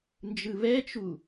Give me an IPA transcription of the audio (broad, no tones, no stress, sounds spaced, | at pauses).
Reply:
n d͡ʒ ɯ β ɛ t͡ʃ u